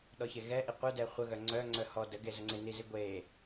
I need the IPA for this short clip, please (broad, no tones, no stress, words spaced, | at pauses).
ɗɔçeɣɛʔi qʷœdɛ χʷəɣœ ŋ͡ǀœŋ͡ǀœ hɔ dəɡe zəŋ͡ǀenizi ɡʷe